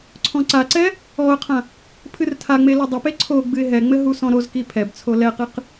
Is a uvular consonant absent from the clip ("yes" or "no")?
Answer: no